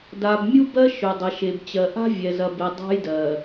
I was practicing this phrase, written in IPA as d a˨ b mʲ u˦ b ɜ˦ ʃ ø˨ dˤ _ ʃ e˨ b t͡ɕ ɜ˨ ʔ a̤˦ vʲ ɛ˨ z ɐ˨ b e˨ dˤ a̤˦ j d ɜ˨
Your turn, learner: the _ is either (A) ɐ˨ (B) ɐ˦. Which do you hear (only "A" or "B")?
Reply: A